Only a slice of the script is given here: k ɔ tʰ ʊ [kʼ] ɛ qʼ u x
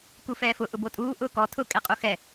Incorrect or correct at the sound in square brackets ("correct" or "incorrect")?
correct